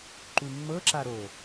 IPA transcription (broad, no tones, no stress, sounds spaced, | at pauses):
ǃ u mː ɤ ǁ a ɾ o